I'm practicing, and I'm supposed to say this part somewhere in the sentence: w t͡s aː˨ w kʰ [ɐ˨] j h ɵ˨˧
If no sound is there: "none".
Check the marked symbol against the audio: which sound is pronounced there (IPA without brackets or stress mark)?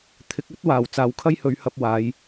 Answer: ɐ˥